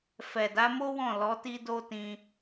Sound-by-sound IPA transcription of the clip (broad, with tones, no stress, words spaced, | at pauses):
fɛ˨da˨˦mo˦wɔ̃˦˨ lɔ˨˦ti˦do˦ tĩ˧